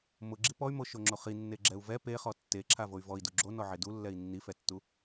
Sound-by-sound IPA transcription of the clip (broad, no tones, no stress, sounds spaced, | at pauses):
m ʊ ɡ͡ǁ i p ɔ y̯ m o ʃ o ŋ͡ǁ o χ i nː e ɡ͡ǁ ɛ u̯ v ɛ p e χ ɔ tː e ǁʰ a v o y̯ v ɔ i̯ d u ɡ͡ǁ o n ɔ ʕ e d u lː ɛ i̯ nː i f ɛ tː u